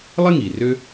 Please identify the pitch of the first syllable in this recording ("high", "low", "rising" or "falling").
high